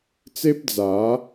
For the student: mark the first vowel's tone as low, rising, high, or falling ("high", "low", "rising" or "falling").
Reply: high